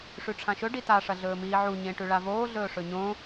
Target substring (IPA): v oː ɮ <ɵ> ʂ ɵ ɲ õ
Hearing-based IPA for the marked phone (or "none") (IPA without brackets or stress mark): ɵː